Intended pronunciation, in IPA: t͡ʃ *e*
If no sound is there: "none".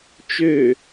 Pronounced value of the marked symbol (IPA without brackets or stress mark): ø